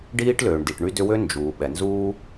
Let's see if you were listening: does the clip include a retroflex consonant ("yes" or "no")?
yes